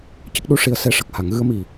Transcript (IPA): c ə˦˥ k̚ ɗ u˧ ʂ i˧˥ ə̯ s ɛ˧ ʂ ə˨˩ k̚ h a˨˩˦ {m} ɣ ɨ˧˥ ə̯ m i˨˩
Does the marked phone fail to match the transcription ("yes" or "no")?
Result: yes